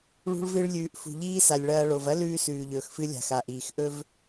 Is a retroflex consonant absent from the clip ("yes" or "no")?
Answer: no